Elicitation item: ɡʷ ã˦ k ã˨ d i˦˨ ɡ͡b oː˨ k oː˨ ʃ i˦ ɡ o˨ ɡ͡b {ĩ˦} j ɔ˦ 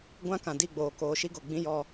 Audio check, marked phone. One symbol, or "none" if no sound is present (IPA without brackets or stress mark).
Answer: ĩ˦